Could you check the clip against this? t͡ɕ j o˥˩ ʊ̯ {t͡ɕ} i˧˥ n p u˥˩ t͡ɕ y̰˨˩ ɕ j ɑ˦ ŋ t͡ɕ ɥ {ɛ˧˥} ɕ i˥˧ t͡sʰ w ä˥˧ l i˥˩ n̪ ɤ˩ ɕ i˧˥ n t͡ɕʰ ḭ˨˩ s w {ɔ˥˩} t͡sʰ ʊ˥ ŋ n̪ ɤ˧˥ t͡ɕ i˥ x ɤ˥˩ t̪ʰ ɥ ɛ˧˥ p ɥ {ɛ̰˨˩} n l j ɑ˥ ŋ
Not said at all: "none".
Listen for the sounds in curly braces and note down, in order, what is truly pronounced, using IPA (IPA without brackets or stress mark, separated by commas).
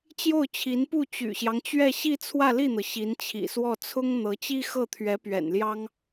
t͡ɕʰ, ɛ˥˧, ɔ˥˩, ɛ̰˨˩